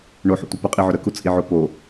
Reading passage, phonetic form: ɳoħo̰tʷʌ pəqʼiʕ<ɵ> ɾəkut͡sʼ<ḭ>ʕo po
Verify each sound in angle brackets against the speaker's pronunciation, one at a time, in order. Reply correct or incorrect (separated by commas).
correct, incorrect